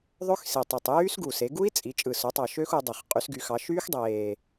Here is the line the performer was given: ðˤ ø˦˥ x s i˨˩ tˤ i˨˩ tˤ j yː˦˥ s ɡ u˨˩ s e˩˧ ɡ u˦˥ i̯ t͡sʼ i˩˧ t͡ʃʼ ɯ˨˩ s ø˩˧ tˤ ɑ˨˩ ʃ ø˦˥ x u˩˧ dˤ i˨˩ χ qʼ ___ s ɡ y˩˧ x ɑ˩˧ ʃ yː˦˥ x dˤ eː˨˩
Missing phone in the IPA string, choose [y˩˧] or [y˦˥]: y˩˧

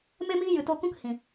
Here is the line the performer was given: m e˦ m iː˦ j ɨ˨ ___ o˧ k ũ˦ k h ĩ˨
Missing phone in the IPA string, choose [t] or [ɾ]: t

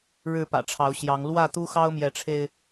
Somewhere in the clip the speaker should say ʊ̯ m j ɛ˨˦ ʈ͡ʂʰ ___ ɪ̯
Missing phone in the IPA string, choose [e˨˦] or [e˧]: e˧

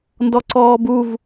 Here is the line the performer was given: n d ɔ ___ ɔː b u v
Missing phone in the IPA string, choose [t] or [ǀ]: ǀ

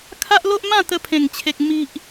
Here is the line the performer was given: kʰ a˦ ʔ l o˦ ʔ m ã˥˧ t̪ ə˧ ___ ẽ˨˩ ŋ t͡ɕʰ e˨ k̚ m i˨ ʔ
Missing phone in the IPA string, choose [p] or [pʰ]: pʰ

